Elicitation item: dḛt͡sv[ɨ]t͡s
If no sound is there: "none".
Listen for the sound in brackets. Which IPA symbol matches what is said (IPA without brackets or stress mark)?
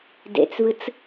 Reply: ɨ